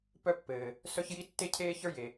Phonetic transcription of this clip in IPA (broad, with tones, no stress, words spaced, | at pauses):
pœ˥pːɘː˩ | sœ˥çji˥ tːe˥cʰeː˥ çə˞˥je˩